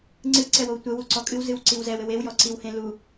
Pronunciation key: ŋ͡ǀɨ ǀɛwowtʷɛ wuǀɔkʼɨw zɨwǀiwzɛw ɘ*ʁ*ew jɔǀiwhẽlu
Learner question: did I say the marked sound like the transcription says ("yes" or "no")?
no